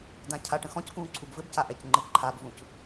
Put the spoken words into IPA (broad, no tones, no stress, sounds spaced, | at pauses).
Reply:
d ã cʰ a ʈ ə̃ x ɔ̃ c k ũː ǀʰ u b v ɘ b c a ʔ ɛ c ŋ͡ǃ ɘ ǃʰ a b v ũ c